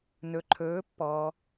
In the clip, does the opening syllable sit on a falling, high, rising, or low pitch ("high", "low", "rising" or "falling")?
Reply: low